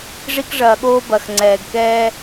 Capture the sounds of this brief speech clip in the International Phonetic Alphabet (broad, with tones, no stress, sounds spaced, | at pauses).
ʐ i˦ k ʐ ɐː˨ ɠ oː˦ b ɐ˨ x ŋ͡ǀ ɛː˨ ɡ k ɛː˦